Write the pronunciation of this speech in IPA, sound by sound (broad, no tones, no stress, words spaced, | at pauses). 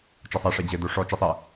t͡ʃɐsˤa ʂɛd͡ʑɘ doʂɔ t͡ʃisˤɛ